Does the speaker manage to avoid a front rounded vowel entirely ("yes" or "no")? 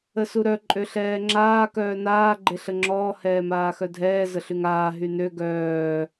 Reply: no